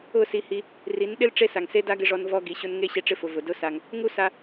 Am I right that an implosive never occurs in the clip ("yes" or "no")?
no